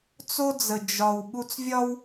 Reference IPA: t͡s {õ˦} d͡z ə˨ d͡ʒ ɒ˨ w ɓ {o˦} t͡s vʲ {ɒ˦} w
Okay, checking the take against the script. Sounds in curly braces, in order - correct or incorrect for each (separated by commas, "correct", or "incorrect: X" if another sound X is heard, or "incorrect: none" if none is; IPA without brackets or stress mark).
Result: incorrect: o˦, incorrect: u˦, correct